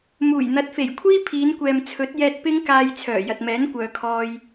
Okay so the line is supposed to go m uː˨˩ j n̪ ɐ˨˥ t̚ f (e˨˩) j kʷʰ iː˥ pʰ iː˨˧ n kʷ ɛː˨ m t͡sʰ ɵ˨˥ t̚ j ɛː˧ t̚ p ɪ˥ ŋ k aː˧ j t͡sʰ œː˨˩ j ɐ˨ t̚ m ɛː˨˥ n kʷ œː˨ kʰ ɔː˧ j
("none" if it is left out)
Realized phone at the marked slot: e˨˩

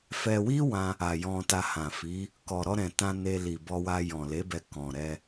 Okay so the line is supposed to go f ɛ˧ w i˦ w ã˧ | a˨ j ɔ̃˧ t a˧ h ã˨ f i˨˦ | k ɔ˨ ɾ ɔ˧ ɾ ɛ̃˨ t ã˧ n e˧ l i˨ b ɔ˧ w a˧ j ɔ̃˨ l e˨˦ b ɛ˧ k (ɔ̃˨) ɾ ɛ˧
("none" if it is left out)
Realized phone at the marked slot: ɔ̃˨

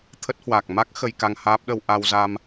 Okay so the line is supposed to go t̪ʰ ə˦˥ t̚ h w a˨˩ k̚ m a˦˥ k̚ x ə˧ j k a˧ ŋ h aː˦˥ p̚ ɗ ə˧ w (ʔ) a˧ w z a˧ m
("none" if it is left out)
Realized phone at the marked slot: ʔ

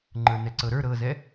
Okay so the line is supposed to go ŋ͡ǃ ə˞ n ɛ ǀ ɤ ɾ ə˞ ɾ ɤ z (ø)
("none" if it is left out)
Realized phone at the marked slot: ɛ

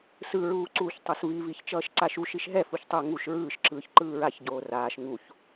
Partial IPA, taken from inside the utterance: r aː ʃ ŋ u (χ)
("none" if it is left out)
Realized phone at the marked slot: ç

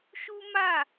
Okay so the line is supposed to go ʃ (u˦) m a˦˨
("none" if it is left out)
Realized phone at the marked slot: u˦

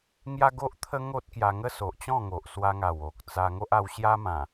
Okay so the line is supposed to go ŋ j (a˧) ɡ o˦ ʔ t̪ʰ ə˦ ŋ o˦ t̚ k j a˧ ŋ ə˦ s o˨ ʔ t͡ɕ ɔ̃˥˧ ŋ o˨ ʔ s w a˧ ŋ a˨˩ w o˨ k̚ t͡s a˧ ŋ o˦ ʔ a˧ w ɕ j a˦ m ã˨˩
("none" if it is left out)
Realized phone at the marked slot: a˦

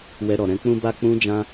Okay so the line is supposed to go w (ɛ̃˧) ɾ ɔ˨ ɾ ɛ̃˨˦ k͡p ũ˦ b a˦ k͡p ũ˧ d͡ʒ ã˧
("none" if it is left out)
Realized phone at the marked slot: ɛ˧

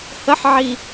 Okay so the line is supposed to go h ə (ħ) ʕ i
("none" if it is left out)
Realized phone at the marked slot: ħ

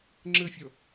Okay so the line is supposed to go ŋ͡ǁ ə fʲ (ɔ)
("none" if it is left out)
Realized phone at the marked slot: ɔ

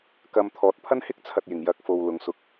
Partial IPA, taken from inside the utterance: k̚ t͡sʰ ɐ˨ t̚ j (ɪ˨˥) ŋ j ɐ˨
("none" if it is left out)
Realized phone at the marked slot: ɪ˨˩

